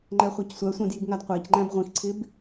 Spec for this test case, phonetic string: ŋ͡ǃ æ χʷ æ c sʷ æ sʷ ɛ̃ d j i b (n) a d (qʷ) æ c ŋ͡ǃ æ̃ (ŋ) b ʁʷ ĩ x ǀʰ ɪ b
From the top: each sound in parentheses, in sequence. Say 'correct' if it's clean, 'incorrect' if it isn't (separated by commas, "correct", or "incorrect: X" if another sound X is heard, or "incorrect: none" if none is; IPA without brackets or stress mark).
incorrect: ŋ, correct, incorrect: none